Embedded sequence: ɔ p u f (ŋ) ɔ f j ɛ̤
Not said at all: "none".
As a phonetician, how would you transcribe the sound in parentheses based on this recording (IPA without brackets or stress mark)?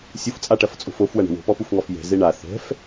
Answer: ŋ